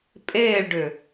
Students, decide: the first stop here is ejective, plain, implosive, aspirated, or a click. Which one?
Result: ejective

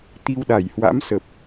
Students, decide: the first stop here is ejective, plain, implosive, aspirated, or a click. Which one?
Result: plain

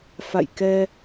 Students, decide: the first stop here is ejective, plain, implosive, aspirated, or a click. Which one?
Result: plain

